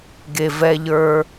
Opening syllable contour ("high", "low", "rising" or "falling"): low